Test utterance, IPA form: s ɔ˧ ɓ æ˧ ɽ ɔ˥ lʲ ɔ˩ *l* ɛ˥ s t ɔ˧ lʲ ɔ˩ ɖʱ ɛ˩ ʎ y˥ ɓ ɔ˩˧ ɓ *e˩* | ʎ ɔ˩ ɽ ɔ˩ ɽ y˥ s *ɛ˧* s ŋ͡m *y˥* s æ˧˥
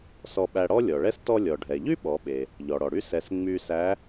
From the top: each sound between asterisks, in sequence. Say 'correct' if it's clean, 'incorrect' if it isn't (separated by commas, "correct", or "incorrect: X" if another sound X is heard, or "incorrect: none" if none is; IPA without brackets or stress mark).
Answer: incorrect: ɭ, correct, correct, incorrect: y˧